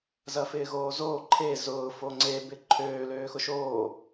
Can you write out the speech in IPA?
z ɐ f ɪː ɣ oː z oː ǃʰ e z ʊː f o ŋ͡ǀ e b ɪ ǃʰ øː l øː x ʊ ʃ oː

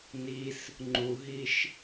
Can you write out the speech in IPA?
n i s | ŋ͡ǃ u ɦ i ʃ

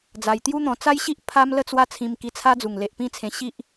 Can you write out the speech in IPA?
d͡z a˧ j t̪ j u˦ n̪ ɔ̃˧ t͡s a˦ j ɕ i˦ ʔ pʰ a˦ m l ə˥˧ t͡s w a˦ t͡sʰ ĩ˧ m k i˧ t͡sʰ a˦ d͡z u˨˩ ŋ l e˨ ʔ p ĩ˦ t͡sʰ ẽ˧ ɕ i˦ ʔ

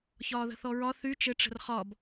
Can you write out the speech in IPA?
ç ɒː ð ə̤ θ ɔ ɹ ɒ θ y t͡ʃ ɘ ʈ͡ʂ ə̤ r χ ɒ b

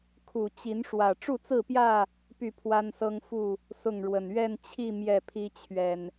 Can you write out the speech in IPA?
kʰ u˨˩ t͡ɕ i˨˦ n ʂ w ä˨˩ ʈ͡ʂ u˥˨ t͡s ɹ̩˥˨ p j ä˥˨ | p y˥˨ pʰ w a˦ n s ɤ˦ ŋ f u˥˨ | s ʊ˥˨ ŋ ɻ w ə˨˩ n ɥ ɛ˥˨ n t͡ɕʰ i˥˨ m j ɛ˥˨ pʰ i˦ t͡ɕʰ ɥ ɛ˨˩ n

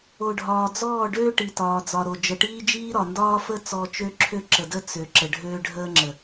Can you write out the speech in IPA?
o˨ ɖʱ ɒː˨ d͡z ɔː˦˨ ɖ øː˦ ʈ i˨ t ɒː˨ d͡z ɒ˨ ɾ o˨ d͡ʒ ə˨ ʈ iː˦ d͡ʒ iː˦ ɾ ɒ˨ n d ɒː˦ f ə˦ t͡s ɔ˨ t͡ʃ ø˦ ǁʰ ø˦ ǁ ə˨ d ə˦ t͡s ø˨ ǁ ə˨ ɖʱ øː˦ ɖʱ əː˦ ŋ͡ǁ ə˨

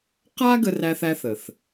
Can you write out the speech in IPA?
q a˥ ɡ ə˥ r æ˥ θ æ˥ θ ə˨˩ θ

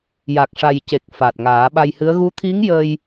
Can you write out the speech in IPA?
j a˨˩ k̚ ʂ a˨˩ j c e˨˩ k̚ f a˨˩ t̚ ŋ aː˨˩˦ ɓ a˧ j h ɨ˧˥ ə̯ ɣ u˧˥ t̪ʰ i˧˥ ŋ j ə˧ j

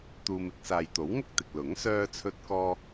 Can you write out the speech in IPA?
t̪ uː˧ m ɪ˥ k̚ s aː˨ j t̪ o˨˥ w ŋ ʊ˥ k̚ t̪ ɪ˨ k̚ l ʊ˨˥ ŋ s œː˥ t͡sʰ ɵ˥ t̚ k ɔː˥

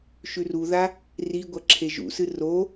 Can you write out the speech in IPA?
ʃ ʉ r u ð a | r i ɡʷ ɐ ǁʰ e ʒ ṵ s ɨ r o

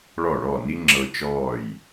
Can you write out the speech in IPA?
ɭ ɔ˥˩ ɭ ɔ˥˩ n i˥ ŋ͡ǁ ɤ˧ t͡ʃ ɔː˥˩ j

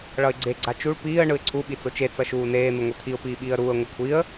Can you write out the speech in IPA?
ɭ ʌ ɪ̯ ɡ͡ǀ e ɡ͡ǀ a t͡ʃ u ɭ p iː ə̯ ɳ ɯ ɪ̯ ǀʰ u ɓ i t͡s o t͡ʃ e t͡s ʌ ʃ uː n eː n̪ ɯ ŋʷ e t̪ʰ i ʊ̯ p iː ɓ iː ə̯ ɾ uː ə̯ ŋʷ ʌ kʷʰ i ə̯

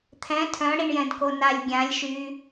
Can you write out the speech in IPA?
t̪ʰ ɛ̃ tʰ œ̃ ɽ i ɳ j ɛ̃ d k o n a lʲ ɡʲ ã lʲ ʃ y

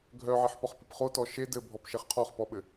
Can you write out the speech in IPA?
ɡʱ œ ʕ i ħ p ɒ χ p i p χ o t ɔ ʃ e d ɘ bʱ ɔ p ʃ e χ qʰ ɔ χ p ɔ ɓ ɘ

